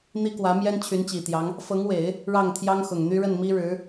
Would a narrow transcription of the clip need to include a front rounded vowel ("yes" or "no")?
yes